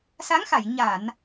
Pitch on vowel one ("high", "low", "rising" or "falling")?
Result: rising